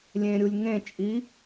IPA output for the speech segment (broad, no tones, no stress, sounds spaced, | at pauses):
lʲ ẽ ɾʲ u lʲ ŋ ẽ t͡ʃʼ i